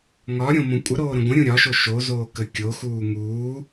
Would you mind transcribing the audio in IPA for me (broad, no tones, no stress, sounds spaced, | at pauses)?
ŋ ɒ ɾʲ õ m õ kʷʼ ə ɾ oː ɾ ə̃ ɡʷ ə̃ ɾʲ ũ ɾʲ ɒ ʃ o ʃ o z oː k ə kʲ o x uː ŋ uː